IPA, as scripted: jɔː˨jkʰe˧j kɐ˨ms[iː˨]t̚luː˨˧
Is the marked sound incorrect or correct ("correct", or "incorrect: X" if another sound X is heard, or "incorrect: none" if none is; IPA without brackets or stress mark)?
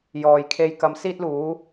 incorrect: iː˧